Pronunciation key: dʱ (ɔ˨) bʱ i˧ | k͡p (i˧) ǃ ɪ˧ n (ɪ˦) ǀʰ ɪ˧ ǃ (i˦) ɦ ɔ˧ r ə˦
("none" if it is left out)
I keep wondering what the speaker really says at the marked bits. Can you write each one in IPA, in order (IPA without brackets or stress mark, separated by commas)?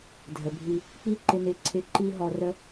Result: ə˨, i˦, ɪ˨, i˦